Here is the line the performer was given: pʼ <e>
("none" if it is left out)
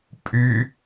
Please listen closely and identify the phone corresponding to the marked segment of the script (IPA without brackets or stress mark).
y